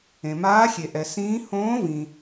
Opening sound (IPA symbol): ẽ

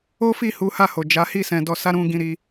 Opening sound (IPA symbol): o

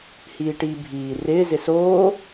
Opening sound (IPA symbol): h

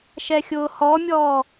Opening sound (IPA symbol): ʃ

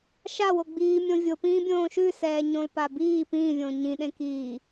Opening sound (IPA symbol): ʃ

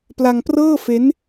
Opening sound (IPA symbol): p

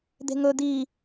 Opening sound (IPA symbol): d̪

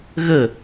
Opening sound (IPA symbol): ɣ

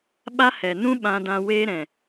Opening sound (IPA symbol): ɓ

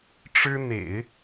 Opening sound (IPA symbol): ʈ͡ʂ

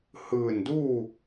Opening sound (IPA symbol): h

